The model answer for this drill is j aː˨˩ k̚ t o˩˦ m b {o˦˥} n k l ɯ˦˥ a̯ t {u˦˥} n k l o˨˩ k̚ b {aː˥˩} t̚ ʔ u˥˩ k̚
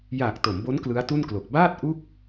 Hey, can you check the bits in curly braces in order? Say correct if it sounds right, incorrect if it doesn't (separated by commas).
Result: correct, incorrect, correct